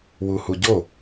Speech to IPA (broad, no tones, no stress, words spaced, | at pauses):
wuhuɟo